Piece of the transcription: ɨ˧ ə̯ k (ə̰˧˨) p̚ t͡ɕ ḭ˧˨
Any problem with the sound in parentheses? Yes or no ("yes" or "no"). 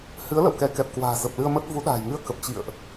yes